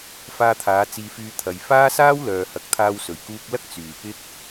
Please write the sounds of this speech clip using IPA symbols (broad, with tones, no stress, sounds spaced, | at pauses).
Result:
f aː˧ t̪ʰ aː˨˧ t͡s iː˧ f yː˧ t̪ʰ ɐ˧ j f aː˥ s aː˥ w l œː˨ h ɐ˨ k̚ t̪ʰ aː˧ w s ɵ˨˩ ɥ k uː˧ k̚ l ɐ˥ k̚ t͡s yː˨˩ p ɪ˥ k̚